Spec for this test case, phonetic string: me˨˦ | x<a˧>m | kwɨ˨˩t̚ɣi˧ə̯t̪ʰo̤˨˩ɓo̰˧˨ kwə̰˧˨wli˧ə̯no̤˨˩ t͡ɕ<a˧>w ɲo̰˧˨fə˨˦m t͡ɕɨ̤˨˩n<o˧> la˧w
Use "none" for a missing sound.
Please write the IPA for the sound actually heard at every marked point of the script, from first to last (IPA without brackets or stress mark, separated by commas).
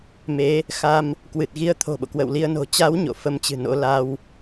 a˧, a˨˦, o̰˧˥